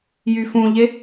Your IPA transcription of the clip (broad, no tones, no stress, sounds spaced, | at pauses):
j y f ũ ʎ e